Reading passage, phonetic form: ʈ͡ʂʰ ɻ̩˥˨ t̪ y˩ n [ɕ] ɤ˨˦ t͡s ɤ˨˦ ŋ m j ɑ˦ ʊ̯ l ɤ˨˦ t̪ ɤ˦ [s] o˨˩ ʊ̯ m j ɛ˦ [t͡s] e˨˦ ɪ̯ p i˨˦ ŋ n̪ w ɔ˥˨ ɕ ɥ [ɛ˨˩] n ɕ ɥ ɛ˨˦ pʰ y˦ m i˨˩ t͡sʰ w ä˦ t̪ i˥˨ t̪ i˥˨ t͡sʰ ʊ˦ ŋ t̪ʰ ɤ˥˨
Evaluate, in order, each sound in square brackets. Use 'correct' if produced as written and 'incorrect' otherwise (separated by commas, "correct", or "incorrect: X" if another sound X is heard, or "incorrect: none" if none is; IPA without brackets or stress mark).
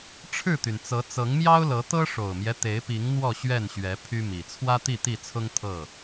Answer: incorrect: t͡s, incorrect: ʂ, incorrect: t̪, incorrect: ɛ˥˨